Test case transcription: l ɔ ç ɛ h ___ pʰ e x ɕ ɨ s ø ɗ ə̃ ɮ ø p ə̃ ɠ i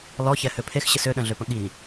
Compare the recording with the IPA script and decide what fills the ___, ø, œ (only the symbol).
ø